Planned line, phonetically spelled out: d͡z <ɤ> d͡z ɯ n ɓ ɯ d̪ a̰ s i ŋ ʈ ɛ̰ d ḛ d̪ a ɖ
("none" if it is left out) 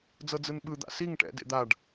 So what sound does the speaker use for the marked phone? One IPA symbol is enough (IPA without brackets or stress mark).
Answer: ɤ